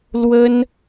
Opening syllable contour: high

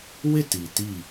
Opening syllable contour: falling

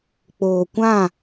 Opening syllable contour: low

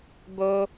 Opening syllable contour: high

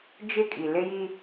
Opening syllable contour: falling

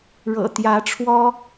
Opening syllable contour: low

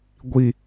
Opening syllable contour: low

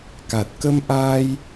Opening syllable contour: low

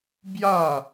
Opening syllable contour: falling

